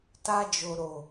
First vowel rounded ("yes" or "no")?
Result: no